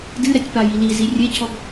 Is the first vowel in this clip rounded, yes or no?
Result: no